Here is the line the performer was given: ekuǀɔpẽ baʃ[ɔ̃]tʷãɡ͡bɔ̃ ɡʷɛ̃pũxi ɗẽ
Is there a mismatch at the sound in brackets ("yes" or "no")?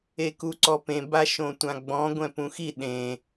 yes